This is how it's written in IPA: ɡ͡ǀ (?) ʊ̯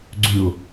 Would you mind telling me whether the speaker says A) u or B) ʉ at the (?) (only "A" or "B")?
B